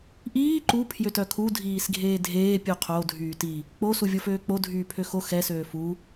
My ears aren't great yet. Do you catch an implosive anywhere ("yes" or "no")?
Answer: no